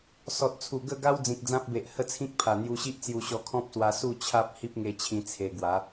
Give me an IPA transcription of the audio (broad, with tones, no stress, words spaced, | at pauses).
sɔ˨t̚t͡sʰu˨˩ ɡə˥˧ɡa˦w d͡zĩ˨k̚d͡zã˦p̚be˨ʔ hə˥˧t͡sʰĩ˦k̚pʰa˨˩ n̪ju˧ɕi˦ʔt͡sju˧ ɕɔ˧kʰɔ̃˦p̚swa˧ su˥˧t͡ɕʰa˦p̚ hi˦p̚ŋe˧t͡ɕʰĩ˧ t͡sʰe˧ ɡwa˨˦